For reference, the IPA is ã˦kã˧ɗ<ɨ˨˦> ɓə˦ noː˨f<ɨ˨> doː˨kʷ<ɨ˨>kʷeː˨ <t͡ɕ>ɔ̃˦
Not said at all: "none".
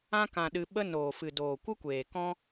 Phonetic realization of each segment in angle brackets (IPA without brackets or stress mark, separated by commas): ɨ˧, ɨ˨, ɨ˦, k